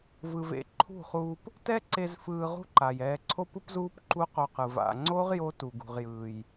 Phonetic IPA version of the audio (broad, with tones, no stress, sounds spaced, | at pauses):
v ɯ˨ v ḛ˧ ǃʰ ṳ˦˨ χ uː˧ p | t ɛ˦ ǀ e˧ z f ɯː˧ ʁ ṳ˦ ǃ a˨ j ɛː˧ ǀʰ o˦ p ɯ˦ p z uː˦ p ǃ u˦ q o˧ q ɯ˨ v a̰˨ ŋ͡ǀ o˦ ʁ j o˦ t u˨ ɡ ṳ˨ ʁ j ɯː˨ j